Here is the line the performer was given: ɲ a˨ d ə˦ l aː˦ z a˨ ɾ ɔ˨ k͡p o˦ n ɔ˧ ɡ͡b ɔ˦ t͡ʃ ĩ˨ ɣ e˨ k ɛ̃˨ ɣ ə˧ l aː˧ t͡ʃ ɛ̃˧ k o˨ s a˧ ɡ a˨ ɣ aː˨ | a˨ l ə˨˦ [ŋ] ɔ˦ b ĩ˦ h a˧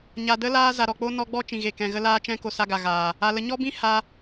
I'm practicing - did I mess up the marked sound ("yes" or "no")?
yes